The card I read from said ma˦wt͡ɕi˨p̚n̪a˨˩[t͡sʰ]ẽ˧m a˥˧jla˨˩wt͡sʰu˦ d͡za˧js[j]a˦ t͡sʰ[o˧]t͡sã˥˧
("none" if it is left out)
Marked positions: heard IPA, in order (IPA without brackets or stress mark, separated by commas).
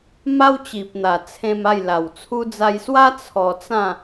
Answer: t͡sʰ, w, ɔ˧